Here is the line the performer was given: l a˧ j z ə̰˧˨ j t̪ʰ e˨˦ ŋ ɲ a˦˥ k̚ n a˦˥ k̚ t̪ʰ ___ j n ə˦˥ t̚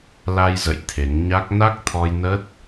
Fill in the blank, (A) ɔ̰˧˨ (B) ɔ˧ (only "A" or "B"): B